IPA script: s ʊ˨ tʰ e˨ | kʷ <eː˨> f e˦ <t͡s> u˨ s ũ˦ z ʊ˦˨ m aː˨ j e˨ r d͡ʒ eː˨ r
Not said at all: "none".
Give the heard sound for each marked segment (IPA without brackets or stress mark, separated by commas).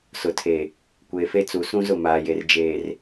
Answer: eː˨, t͡s